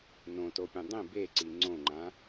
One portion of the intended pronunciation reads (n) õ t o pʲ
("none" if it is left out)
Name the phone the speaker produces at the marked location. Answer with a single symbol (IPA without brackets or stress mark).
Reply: n